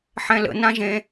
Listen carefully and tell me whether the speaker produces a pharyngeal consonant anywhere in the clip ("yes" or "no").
yes